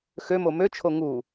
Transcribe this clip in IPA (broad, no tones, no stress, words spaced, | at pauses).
xømo møt͡ʃʰo ŋu